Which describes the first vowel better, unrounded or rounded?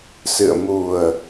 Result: unrounded